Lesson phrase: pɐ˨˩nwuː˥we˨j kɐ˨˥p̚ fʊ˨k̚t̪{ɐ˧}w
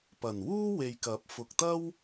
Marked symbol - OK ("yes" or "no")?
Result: no